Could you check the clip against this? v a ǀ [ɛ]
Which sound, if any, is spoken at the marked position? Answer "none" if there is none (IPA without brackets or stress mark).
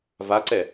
ɛ